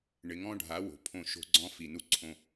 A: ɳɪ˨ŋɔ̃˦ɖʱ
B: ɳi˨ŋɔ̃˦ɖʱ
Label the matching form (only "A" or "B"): A